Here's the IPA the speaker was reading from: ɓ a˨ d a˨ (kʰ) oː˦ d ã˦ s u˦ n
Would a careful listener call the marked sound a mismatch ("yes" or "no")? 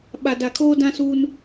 no